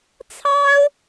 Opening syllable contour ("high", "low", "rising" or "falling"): high